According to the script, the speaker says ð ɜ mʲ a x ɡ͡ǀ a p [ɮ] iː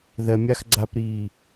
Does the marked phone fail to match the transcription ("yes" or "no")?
yes